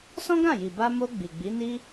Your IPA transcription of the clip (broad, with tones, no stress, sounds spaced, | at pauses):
s ɔ̃˦ ɡ ã˦˨ j i˨ b a˧ m o˧ ɡ͡b i˨ ɡ͡b i˨˦ n i˦